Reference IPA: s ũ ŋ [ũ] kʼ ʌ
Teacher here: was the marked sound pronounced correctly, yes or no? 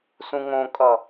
no